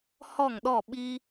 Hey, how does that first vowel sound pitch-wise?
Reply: falling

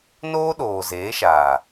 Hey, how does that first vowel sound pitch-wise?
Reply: high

